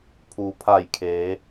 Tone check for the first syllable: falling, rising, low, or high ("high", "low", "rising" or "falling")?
low